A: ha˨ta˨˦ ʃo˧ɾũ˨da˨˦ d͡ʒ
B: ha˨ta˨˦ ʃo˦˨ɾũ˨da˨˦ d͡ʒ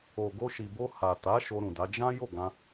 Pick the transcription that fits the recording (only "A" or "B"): A